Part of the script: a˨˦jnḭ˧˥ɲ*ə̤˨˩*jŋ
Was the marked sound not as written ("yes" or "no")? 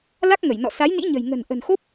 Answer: no